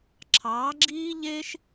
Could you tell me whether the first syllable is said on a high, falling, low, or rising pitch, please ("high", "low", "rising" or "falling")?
rising